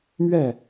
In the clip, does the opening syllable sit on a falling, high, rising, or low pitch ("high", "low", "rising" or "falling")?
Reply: falling